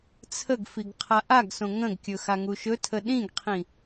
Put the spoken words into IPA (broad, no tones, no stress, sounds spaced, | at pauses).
t͡sʰ ə ɡ f i ɡ qʰ a ʔ a ɡ s õ ŋ ə̃ ɡ kʲ ɵ x a ŋ u ʃ ɵ tʰ ə ɗ ĩ ɡ qʰ ĩ